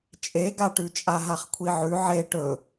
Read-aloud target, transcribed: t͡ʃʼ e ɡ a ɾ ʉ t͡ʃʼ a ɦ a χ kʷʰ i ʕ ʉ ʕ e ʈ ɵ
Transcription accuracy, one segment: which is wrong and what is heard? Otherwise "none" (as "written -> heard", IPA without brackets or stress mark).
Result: ɾ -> ʈ